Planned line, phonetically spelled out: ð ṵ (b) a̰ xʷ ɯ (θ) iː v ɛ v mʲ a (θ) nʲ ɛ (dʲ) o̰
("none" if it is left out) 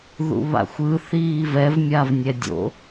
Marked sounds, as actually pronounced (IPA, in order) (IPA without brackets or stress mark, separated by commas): β, θ, v, dʲ